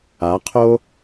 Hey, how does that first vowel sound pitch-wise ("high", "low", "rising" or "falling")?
rising